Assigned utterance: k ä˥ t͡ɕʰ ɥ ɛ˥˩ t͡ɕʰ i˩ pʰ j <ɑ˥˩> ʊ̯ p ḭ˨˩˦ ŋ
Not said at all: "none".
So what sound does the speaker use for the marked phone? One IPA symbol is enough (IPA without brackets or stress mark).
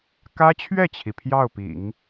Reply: ɑ˥˩